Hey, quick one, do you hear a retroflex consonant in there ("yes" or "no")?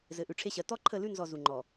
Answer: yes